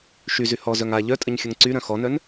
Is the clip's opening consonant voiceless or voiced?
voiceless